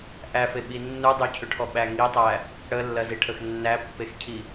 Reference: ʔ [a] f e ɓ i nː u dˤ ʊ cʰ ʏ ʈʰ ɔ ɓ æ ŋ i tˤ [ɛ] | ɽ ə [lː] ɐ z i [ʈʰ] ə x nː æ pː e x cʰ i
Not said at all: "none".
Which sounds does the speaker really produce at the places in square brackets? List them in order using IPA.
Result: æ, æ, lː, ʈʰ

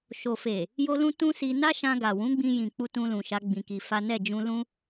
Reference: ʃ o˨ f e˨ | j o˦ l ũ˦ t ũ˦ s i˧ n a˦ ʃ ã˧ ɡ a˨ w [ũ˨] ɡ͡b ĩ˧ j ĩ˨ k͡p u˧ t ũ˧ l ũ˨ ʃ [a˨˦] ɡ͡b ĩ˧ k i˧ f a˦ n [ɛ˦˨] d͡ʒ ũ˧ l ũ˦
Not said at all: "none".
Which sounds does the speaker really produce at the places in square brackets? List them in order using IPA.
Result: ũ˨˦, a˨˦, ɛ˦˨

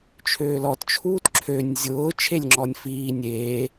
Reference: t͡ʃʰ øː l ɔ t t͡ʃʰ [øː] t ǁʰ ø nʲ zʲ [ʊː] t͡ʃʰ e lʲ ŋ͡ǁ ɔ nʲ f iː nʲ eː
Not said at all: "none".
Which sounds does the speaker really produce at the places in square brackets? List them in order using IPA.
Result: uː, ʊː

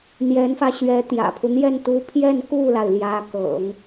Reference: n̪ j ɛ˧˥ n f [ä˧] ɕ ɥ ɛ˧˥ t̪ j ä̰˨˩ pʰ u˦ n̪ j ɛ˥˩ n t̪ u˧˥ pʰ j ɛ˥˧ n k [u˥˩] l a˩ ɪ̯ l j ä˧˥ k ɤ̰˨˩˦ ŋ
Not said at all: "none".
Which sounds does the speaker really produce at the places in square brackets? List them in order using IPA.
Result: ä˧, u˥˩

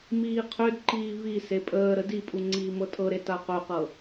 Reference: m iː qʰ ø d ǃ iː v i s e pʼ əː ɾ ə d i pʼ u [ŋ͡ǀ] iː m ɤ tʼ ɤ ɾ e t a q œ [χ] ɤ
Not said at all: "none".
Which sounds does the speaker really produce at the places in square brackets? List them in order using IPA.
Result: ŋ͡ǀ, q

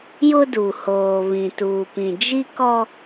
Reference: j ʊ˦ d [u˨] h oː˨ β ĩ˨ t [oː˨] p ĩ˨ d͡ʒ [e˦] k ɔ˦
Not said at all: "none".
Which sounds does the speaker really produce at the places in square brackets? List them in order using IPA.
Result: u˨, uː˨, i˦

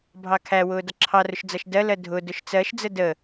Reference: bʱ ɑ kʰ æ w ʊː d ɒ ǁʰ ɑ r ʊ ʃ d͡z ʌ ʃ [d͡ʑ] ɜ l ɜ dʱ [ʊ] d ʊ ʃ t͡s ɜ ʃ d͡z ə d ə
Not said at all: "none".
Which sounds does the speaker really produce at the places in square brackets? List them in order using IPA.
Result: d, ʊ

